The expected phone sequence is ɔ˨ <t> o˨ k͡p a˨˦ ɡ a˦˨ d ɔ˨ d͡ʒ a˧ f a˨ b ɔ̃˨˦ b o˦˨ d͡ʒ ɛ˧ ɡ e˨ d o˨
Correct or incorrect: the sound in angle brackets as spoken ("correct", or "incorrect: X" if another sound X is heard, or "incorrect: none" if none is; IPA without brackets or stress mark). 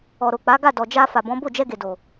incorrect: ɾ